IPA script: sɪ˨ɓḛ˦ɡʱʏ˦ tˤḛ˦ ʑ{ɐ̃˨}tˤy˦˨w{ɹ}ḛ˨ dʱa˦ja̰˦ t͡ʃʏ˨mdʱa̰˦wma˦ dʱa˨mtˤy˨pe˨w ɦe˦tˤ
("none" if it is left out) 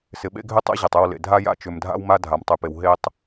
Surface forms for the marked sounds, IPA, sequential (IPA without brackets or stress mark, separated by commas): ɐ˨, l